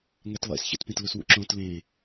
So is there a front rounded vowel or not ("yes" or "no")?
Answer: no